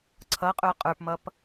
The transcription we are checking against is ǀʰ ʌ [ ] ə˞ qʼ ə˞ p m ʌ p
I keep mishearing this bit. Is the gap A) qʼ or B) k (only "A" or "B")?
A